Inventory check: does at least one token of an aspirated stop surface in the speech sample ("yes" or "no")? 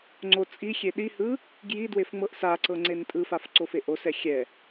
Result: no